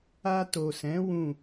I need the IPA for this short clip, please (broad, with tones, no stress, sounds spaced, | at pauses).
a˧ t o˨ s ɛ̃˨˦ w ũ˦˨